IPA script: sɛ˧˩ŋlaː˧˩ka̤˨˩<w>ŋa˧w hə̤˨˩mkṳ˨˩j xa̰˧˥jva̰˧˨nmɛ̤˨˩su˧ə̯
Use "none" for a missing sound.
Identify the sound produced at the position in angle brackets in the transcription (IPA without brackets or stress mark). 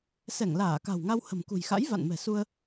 w